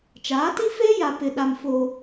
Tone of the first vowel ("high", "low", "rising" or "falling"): rising